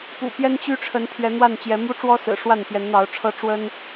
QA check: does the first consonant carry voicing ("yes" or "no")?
no